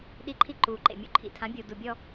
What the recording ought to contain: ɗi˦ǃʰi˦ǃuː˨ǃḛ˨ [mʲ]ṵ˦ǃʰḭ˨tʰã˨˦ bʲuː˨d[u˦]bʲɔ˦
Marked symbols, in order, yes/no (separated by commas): yes, no